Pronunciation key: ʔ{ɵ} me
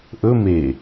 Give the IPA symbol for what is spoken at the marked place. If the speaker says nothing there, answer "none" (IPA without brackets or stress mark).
ɵ